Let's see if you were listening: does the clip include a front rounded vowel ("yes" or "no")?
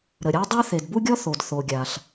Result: no